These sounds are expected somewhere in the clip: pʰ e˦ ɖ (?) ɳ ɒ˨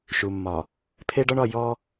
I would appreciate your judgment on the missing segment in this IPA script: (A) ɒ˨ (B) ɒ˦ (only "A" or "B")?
B